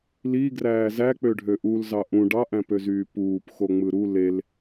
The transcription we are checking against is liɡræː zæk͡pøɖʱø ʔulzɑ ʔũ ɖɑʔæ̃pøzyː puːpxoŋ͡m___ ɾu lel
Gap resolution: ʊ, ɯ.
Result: ɯ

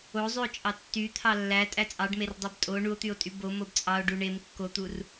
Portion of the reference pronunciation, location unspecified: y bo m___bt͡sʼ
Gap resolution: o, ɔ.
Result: o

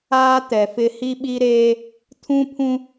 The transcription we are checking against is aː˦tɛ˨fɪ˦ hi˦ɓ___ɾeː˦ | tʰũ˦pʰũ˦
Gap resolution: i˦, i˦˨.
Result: i˦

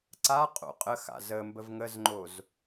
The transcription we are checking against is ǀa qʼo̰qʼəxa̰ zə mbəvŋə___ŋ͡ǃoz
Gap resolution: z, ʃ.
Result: z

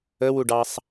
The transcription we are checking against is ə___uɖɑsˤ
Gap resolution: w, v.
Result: w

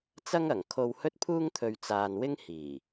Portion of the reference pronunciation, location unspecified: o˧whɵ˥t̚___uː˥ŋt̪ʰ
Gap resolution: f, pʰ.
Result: pʰ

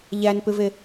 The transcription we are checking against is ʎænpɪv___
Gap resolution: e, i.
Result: e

